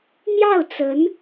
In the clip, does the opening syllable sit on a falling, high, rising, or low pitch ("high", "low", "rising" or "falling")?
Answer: falling